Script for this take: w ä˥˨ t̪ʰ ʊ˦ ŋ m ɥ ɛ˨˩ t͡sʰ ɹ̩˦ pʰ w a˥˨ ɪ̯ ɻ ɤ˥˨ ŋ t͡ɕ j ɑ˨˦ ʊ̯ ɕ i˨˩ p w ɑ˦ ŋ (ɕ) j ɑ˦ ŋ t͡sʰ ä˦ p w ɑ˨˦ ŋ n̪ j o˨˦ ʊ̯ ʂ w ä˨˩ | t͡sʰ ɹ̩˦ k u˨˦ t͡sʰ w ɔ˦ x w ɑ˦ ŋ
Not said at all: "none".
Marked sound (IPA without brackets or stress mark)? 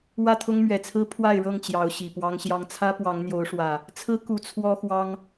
ɕ